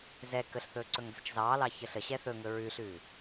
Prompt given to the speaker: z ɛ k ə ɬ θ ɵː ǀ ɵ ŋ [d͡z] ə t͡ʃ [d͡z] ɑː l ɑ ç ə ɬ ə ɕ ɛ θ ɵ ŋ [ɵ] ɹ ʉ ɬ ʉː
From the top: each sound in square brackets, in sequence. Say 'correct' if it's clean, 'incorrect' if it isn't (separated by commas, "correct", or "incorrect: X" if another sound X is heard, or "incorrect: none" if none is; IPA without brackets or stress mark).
correct, incorrect: z, correct